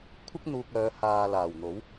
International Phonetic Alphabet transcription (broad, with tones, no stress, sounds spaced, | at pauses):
kʷʰ ɪ˥ k̚ n̪ uː˧ k̚ œː˨˧ h aː˨ l aː˨˩ w n̪ o˨˥ w